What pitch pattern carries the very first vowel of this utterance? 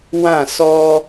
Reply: falling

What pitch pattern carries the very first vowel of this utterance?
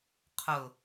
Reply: low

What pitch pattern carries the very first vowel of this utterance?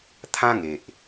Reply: high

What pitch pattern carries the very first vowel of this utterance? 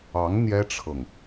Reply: rising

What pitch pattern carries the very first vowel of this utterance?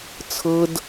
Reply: high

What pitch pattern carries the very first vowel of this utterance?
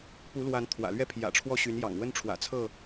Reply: rising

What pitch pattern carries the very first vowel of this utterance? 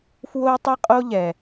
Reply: high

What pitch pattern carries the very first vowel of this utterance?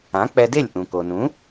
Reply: rising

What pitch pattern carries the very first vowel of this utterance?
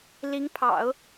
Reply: rising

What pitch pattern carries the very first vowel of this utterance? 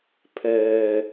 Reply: low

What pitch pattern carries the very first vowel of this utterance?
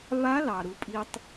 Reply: rising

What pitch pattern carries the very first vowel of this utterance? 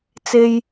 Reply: high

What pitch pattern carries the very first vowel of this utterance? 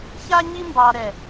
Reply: high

